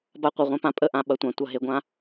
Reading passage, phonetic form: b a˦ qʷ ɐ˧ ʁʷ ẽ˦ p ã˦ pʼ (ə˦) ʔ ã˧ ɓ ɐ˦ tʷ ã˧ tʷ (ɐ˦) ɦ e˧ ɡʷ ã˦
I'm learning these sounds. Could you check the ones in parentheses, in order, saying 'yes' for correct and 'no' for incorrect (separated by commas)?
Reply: yes, yes